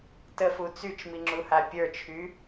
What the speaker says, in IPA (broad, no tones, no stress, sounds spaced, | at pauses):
t ə f u t͡s y t͡ʃ m i ŋ͡ǁ u h a pʲ ə˞ t͡ʃʰ y